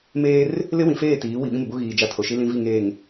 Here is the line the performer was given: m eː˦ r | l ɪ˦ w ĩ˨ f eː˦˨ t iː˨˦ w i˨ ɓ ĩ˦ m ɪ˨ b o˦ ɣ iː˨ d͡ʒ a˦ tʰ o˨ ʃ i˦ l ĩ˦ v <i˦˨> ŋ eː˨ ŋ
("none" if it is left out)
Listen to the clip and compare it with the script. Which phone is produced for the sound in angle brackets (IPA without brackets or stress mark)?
i˦˨